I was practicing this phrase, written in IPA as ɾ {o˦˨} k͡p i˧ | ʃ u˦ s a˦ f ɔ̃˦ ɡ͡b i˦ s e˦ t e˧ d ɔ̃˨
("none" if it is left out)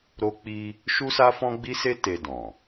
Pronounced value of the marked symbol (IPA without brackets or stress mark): o˦